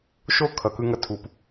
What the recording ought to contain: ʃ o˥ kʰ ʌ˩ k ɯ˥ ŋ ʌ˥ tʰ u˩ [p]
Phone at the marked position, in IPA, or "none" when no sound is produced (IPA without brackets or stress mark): p